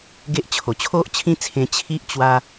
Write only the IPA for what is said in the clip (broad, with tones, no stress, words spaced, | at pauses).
ɡe˦ʔt͡ɕʰo˨˩ t͡ɕʰo˦ʔt͡ɕʰĩ˦t͡sʰẽ˧ t͡ɕʰi˦ʔ t͡ɕwa˦